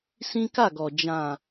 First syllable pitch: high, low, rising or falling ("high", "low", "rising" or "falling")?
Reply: high